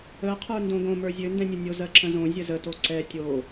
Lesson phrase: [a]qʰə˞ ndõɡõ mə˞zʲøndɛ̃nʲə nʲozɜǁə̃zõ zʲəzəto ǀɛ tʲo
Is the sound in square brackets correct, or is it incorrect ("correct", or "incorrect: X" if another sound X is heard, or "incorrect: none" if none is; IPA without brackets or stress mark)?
incorrect: ə